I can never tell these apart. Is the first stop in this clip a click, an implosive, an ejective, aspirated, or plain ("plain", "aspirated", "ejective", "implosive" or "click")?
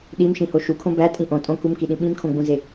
implosive